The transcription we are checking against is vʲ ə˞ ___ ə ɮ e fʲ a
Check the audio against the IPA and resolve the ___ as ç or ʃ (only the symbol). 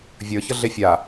ç